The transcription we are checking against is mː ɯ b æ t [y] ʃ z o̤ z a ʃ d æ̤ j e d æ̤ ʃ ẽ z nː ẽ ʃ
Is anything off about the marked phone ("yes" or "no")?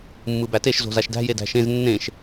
yes